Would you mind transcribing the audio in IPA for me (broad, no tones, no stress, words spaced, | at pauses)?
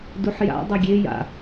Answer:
duħja̰ dˤœɡʲe ja̰